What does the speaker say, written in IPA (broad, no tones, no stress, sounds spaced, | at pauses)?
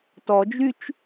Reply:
t ɔ d͡ʒ y t͡ʃ